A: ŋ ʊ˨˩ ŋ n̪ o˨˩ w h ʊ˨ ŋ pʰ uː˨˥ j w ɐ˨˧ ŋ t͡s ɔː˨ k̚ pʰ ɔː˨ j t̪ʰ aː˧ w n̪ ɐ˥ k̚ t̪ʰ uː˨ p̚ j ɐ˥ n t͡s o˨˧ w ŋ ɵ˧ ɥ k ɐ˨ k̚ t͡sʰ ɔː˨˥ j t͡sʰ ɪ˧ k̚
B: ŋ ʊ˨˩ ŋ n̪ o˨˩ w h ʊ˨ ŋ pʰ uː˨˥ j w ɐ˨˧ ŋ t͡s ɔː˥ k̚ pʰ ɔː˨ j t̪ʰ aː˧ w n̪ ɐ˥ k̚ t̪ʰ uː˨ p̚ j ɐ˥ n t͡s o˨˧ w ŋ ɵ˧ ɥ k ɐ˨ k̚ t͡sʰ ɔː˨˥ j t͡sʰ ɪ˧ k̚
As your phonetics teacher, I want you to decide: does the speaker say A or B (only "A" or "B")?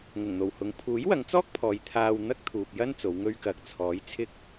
B